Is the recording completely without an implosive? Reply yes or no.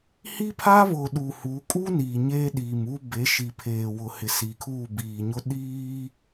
no